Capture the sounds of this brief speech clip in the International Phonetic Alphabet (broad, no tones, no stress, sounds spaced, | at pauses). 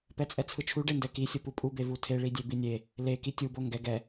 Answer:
p ɛ t͡sʼ ɛ t͡sʰ ɯ t͡ʃʰ u ɖ e n d ɛ k i sʲ o p u pʼ u b e v u tʰ e ɭ i dʲ e b i nʲ e | l e k i tʲ u b o ŋ ɡ ɛ ɡ ɛ